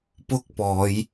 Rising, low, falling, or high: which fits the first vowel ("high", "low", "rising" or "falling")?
high